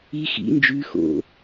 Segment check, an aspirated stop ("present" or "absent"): absent